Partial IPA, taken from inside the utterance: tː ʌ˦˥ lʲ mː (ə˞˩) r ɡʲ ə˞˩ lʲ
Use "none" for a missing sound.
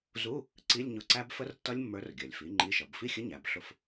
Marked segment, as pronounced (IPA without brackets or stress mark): ə˞˨˥